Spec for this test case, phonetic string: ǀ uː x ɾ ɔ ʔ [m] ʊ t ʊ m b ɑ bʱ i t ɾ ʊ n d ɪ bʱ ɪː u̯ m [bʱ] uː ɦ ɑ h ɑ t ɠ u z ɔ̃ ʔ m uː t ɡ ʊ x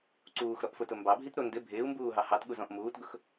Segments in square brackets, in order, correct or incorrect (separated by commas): incorrect, incorrect